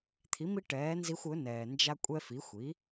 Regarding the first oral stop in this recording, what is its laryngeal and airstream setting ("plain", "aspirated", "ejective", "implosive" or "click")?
aspirated